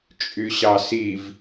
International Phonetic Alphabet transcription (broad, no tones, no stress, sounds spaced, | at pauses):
t͡ʃʼ y ɕ ɑ s i v